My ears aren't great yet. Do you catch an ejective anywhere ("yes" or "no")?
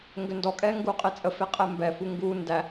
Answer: yes